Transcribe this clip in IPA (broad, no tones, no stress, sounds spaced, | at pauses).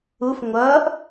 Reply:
u f ŋʷ ʌː ʔ